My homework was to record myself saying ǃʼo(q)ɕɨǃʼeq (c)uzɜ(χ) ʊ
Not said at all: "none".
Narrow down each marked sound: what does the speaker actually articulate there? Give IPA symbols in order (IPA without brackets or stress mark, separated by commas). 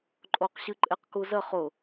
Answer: q, k, χ